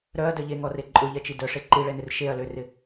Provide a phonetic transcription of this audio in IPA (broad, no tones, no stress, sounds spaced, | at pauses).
ɾ œ ɐ̯ d œ ʎ e ŋ ɔ r e ǃʼ ʊ ʎ ɛ t͡ʃ i d œ ʂ e ǃ i ɭ ɛ n ɪ r ʃ e ɐ̯ l ø r ɪ